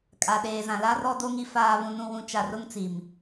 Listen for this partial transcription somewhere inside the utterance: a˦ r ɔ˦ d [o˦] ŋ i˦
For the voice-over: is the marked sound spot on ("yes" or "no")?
yes